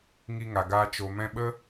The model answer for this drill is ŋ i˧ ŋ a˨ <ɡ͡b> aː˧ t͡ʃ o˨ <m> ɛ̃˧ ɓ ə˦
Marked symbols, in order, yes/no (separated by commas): no, yes